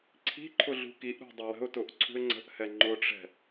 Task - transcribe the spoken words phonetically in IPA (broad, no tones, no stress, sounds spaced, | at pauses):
ǀʰ i̤ ǃʰ ʊ ɮ ṳ k i ʔ ɾ ṳ dˤ ʊ w ə̤ ʊ̯ t ʊ ʔ ǀʰ ṳ ɪ̯ ŋ͡ǀ ə̤ ʔ h ɛ ŋ͡ǃ ʊ ʈ͡ʂ ɛ̤